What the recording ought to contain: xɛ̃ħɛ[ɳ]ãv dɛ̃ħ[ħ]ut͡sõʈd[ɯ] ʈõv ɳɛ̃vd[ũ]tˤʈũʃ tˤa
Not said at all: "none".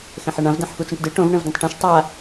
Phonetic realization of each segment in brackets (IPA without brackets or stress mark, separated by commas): ɳ, x, ɯ, õ